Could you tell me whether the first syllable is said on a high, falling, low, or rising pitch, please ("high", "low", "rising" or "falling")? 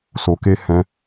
low